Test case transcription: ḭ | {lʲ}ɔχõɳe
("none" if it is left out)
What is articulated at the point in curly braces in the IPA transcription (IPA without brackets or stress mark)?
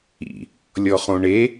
lʲ